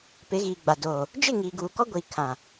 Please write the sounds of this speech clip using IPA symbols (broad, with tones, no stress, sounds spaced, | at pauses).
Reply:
p ɪ˨˦ ɣ iː˨ ɡ͡b a˨ d oː˨ | d͡ʒ ɪ˦˨ ŋ iː˨ ɡ uː˨ k ɔ˦ ɡʷ iː˨ kʰ ã˨